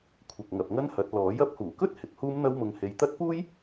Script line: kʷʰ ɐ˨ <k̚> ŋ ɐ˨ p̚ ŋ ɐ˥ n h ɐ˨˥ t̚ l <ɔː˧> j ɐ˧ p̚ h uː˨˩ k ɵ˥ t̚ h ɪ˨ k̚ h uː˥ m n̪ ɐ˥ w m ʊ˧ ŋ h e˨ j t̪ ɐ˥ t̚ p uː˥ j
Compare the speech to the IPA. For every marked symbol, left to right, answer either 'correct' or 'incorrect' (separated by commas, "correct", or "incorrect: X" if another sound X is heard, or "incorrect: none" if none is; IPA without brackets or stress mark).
correct, incorrect: ɔː˨˥